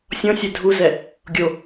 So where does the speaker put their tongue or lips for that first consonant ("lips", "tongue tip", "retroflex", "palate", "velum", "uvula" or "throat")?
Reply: tongue tip